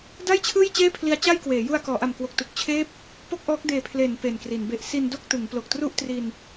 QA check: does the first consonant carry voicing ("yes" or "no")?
yes